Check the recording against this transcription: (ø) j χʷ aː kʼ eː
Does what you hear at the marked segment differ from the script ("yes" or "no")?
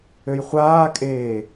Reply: no